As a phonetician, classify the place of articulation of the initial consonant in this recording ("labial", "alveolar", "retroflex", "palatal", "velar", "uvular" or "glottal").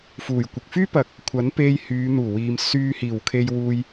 labial